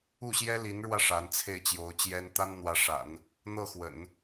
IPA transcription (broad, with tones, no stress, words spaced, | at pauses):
u˥˩ɕjɛ˥li˧˥nɻwä˧ ʂa˧˥nt͡sʰe˥˩ɪ̯t͡ɕjo˧˥ʊ̯t͡ɕjɛ˥n t̪a˥nn̪wä˧˥ʂa̰˨˩˦n | n̪ɤ˥˩xwə̰˨˩˦n